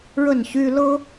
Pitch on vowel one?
falling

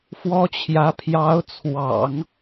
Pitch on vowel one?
high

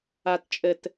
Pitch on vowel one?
low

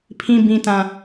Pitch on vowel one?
high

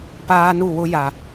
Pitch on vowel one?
high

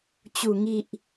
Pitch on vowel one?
low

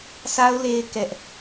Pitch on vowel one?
high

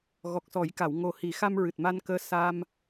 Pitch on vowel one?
low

